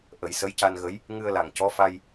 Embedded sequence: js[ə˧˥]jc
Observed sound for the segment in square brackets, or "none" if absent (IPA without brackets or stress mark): ə˧˥